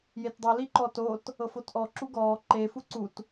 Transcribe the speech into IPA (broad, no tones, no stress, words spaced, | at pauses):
jetdˤɯ liǃɔtot | ɤfotʔɔ ǁuɡɔː ǃe fuǀut